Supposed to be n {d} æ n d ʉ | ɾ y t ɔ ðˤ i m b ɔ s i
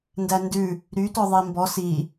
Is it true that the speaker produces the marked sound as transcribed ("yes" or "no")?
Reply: yes